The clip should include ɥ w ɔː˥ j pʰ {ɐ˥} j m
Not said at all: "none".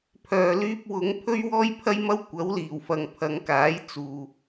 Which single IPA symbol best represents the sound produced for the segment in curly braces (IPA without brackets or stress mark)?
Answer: ɐ˥